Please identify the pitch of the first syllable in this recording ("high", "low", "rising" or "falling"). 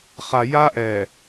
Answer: low